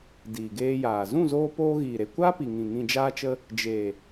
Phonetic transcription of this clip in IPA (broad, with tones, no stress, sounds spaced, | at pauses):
d iː˨ ɡ eː˧ j aː˨ z ũ˦˨ z oː˧ p oː˧ ɣ iː˨ ɾ e˨ kʷ aː˦ p i˨ ŋ ĩ˨ ŋ ĩ˨ d͡ʒ aː˧ t͡ʃ ə˧ | d͡ʒ e˨